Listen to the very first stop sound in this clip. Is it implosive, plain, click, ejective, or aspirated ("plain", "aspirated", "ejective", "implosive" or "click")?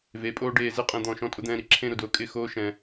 ejective